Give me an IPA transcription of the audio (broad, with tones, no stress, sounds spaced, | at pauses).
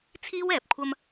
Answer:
t͡sʰ iː˥ w ɛː˨ p̚ kʷʰ ɐ˧ m